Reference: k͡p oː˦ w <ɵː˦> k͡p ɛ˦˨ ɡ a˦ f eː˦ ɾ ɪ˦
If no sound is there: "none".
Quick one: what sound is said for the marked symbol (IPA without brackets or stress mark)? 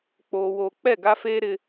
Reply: oː˦